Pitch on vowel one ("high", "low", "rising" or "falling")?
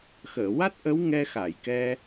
low